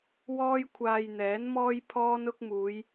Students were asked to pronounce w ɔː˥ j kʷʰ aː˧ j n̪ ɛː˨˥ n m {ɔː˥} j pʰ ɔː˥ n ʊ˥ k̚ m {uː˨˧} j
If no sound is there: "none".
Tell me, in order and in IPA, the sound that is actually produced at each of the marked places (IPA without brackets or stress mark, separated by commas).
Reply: ɔː˥, uː˨˧